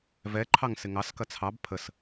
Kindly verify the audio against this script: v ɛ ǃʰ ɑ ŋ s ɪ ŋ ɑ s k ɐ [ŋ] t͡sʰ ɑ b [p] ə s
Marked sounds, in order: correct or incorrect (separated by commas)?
incorrect, incorrect